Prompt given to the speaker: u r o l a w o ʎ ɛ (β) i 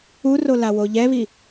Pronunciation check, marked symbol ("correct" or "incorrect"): correct